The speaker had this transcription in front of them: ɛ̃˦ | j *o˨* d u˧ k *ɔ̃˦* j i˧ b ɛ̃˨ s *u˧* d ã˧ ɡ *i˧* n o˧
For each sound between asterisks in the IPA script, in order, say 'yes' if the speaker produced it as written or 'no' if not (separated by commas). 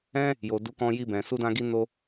yes, no, yes, yes